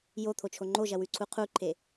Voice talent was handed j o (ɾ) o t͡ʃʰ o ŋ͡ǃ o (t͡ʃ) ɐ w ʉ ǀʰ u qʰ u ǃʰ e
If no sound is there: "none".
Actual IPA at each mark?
t̪ʰ, ʒ

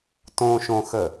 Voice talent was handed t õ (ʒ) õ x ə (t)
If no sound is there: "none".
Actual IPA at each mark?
ʃ, none

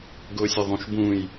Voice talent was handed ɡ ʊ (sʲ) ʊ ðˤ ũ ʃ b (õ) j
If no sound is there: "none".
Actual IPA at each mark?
sʲ, ũ

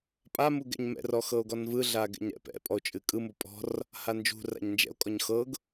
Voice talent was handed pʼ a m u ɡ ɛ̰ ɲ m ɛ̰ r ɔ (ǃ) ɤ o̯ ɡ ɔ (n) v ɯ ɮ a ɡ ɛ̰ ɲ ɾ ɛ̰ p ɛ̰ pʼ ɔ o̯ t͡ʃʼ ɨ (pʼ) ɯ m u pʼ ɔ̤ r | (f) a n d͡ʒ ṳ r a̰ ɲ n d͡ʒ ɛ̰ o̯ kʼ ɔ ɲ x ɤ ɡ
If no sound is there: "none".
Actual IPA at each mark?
x, n, kʼ, h

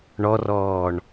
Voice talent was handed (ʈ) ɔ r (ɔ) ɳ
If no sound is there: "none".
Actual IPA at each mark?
ɳ, ɔː

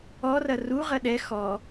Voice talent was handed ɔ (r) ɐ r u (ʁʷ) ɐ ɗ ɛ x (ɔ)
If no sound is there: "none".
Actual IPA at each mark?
r, ʁ, ɔ

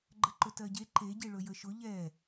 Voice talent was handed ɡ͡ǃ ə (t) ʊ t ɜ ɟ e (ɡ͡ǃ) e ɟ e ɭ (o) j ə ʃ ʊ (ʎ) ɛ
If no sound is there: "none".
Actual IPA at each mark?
ǃ, ǃ, ɵ, ʎ

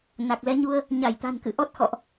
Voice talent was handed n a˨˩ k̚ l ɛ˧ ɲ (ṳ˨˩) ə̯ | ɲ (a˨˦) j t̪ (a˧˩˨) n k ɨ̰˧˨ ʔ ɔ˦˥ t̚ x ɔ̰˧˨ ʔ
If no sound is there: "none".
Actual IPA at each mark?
u˧, a˧˩, a̤˨˩

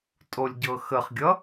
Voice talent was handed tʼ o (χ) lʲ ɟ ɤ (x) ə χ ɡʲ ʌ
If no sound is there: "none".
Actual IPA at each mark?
none, x

